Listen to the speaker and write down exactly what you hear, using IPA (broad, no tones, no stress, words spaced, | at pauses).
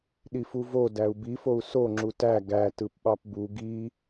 ɗifuvo dæu̯bifou̯ soŋ͡ǁu tæ ɡæ tɯpɓɑpbu ɡi